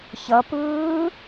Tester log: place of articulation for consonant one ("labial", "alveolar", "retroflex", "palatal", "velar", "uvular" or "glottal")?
palatal